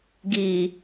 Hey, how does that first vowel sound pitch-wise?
low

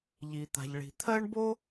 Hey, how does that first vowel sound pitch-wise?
low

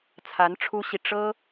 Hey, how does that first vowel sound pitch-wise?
rising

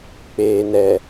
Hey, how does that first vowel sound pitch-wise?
low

